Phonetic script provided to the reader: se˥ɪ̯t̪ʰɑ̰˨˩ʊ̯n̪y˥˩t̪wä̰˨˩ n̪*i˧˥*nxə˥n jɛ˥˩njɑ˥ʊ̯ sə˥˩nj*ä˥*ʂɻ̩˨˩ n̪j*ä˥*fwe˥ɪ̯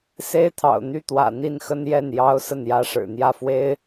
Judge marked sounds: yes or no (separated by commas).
no, yes, no